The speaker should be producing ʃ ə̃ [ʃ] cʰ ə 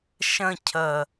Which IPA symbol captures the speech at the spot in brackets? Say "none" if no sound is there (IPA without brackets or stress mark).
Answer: none